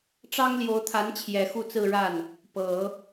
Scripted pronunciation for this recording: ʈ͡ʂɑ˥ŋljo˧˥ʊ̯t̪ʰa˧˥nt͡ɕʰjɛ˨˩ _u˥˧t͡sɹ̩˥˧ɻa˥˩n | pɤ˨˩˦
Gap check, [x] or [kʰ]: x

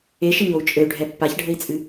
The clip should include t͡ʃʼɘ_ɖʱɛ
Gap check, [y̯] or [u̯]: y̯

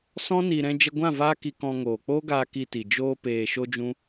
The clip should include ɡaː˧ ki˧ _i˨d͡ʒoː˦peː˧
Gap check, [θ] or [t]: t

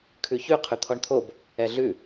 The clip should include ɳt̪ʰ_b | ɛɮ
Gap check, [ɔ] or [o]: o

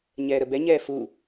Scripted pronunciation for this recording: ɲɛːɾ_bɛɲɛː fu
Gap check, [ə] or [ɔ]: ə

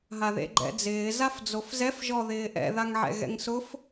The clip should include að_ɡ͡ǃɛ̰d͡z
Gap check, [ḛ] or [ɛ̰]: ḛ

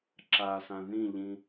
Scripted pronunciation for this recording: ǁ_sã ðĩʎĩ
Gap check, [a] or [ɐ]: a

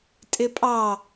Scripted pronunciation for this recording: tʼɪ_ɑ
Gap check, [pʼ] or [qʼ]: pʼ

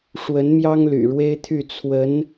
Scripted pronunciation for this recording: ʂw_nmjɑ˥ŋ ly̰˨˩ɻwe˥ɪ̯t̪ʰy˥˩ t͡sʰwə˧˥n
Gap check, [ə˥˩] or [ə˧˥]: ə˧˥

